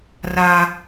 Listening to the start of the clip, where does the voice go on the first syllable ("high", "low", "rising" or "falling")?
high